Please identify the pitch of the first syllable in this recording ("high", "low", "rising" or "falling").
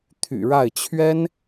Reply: low